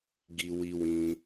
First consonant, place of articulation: velar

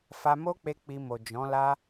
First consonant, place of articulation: labial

